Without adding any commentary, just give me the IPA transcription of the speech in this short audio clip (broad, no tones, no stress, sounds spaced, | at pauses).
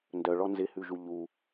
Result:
n d œ ɭ ɔ n z ɪ h ʉ ʒ u ʎ u